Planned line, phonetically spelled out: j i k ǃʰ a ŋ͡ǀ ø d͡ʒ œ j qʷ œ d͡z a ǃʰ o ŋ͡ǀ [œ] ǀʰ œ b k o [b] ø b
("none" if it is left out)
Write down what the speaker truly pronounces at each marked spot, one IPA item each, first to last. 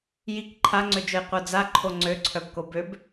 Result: ø, b

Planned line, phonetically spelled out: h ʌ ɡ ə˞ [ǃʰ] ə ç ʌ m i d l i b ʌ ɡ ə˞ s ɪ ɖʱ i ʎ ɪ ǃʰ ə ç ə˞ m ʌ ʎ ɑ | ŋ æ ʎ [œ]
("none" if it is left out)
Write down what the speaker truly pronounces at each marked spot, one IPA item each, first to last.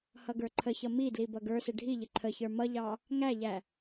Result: ǃʰ, æ

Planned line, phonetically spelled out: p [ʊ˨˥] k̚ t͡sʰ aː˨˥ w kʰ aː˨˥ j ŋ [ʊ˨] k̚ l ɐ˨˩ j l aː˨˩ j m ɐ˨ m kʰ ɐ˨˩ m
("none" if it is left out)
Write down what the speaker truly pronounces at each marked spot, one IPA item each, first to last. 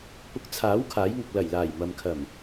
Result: ʊ˨˥, ʊ˨

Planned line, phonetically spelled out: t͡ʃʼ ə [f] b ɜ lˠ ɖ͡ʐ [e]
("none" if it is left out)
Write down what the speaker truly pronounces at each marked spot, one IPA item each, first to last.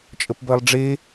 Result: p, e

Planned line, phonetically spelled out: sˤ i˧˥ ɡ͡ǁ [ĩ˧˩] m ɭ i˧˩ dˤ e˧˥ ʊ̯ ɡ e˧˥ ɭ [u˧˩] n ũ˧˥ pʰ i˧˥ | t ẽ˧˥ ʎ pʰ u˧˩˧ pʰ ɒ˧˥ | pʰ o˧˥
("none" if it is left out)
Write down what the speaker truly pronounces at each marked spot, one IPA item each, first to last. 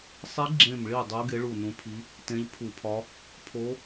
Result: ẽ˧˩, u˧˩

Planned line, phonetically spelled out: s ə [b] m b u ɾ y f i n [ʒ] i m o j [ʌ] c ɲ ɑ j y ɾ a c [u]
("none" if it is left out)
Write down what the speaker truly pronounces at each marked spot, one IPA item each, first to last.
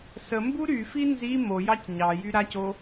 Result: none, z, ɑ, o

